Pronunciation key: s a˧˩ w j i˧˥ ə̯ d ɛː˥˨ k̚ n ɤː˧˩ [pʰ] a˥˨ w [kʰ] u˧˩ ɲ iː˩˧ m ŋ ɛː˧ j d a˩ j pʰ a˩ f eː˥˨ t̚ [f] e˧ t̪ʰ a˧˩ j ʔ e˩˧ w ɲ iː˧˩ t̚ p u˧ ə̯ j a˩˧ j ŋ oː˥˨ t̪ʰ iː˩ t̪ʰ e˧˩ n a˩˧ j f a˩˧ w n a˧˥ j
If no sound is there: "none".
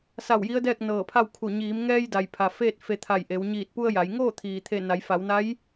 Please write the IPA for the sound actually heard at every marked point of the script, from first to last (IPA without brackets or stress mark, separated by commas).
pʰ, kʰ, f